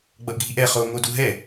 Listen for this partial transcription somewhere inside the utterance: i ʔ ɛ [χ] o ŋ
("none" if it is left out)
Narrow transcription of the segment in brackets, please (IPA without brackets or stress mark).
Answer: χ